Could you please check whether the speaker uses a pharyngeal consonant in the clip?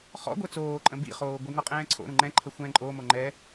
no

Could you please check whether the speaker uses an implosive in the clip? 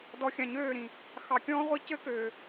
no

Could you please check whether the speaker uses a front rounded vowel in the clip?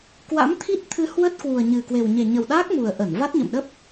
no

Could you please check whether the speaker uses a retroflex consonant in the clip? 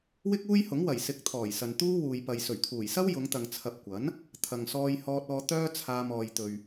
no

